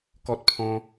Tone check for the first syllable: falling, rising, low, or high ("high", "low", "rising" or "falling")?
high